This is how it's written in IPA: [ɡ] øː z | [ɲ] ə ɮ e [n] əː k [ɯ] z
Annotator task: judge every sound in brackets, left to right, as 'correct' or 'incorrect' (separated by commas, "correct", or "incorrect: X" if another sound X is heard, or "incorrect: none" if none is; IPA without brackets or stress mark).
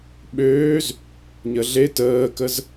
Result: incorrect: ɓ, correct, incorrect: t, incorrect: ə